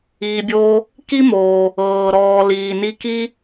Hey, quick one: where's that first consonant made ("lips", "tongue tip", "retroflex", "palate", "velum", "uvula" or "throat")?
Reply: lips